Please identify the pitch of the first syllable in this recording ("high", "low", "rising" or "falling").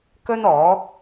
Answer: high